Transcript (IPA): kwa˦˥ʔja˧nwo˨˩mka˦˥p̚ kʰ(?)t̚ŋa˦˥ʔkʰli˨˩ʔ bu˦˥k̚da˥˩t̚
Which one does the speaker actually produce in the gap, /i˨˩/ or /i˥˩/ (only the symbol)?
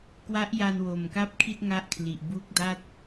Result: i˥˩